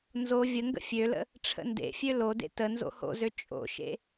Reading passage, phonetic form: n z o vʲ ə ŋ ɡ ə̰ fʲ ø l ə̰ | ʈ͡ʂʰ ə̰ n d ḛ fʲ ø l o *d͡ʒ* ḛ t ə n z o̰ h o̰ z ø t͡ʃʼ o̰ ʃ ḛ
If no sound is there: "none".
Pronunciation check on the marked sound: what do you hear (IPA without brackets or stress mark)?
d